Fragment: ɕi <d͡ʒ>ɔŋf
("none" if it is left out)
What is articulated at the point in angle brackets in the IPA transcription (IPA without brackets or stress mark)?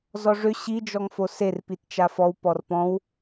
d͡ʒ